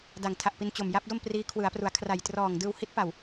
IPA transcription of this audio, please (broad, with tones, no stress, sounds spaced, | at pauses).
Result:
d a˨˩ ŋ tʰ a˨˩ ʔ p i˧ n t͡ɕ o˨˩ m j a˦˥ p̚ d o˥˩ m p r iː˦˥ kʰ w ɯ˩˦ a̯ p r u˩˦ a̯ kʰ r a˨˩ j t r ɔː˨˩ ŋ d ɯː˧ w h i˦˥ t̚ p a˨˩ w